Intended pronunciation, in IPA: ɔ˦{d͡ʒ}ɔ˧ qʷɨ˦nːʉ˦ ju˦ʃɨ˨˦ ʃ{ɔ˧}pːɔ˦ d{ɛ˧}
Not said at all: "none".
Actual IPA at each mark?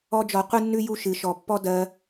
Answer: d͡ʒ, ɔ˨, ɜ˧

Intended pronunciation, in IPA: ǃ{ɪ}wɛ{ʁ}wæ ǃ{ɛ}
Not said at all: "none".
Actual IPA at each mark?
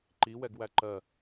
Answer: i, ɡ, ɜ

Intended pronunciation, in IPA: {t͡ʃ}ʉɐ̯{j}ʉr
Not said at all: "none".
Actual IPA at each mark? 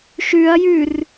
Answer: ʃ, j

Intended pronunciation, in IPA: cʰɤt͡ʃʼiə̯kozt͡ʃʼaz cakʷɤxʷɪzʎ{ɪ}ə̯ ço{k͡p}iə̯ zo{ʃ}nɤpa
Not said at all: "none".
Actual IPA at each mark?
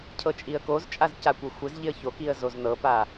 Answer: ɪ, k, z

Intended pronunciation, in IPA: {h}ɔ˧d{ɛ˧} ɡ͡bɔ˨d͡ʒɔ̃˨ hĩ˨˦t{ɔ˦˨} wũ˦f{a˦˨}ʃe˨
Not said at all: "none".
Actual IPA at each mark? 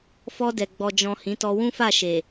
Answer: f, ɛ˨, ɔ˧, a˦˨

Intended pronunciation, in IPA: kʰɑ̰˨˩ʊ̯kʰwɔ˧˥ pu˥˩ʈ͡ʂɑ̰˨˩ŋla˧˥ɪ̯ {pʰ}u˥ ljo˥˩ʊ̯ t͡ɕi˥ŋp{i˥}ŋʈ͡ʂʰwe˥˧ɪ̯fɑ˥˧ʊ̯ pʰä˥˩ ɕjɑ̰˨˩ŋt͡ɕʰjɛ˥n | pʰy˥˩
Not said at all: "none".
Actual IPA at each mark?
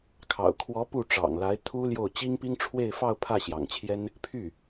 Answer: t̪ʰ, i˥

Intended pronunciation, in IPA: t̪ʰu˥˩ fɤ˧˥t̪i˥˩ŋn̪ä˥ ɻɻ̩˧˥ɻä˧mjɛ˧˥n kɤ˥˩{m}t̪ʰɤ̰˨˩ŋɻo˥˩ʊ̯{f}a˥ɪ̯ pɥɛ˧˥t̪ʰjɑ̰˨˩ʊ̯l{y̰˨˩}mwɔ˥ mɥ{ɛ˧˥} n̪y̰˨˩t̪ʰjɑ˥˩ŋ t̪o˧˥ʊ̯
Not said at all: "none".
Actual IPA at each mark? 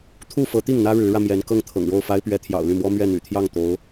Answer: ŋ, f, y˥˩, ɛ˥˩

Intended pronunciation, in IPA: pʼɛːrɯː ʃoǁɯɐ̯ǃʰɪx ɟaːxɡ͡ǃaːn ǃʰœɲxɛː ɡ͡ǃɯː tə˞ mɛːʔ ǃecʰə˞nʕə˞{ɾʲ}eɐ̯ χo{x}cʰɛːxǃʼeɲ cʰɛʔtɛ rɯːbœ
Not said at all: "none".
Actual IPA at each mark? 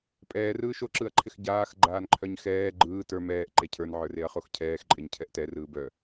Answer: r, x

